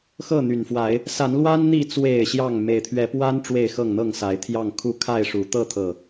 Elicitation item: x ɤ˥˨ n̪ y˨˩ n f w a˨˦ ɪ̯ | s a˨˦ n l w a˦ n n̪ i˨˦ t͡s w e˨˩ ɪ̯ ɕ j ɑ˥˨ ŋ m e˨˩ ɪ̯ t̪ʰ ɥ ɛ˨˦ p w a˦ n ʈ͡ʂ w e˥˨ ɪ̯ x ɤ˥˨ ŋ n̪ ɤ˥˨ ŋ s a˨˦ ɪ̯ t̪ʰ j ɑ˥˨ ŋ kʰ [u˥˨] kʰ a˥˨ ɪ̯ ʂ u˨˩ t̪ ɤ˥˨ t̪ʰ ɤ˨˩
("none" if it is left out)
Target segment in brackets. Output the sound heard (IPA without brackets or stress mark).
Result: u˥˨